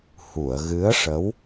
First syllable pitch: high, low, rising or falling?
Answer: low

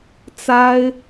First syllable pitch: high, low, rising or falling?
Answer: high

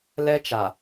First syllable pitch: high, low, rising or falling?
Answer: high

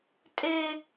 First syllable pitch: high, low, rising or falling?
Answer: high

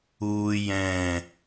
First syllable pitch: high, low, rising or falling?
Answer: high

